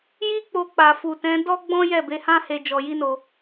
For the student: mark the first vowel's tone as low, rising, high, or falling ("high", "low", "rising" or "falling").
high